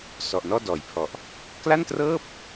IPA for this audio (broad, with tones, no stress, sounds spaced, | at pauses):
s ɔ˨˩ ʔ n ɔː˥˩ d ɔː˩˦ j pʰ ɔ˨˩ ʔ | k l a˥˩ n t r ɤː˥˩ p̚